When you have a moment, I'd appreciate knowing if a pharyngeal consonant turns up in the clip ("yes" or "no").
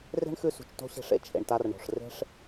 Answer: no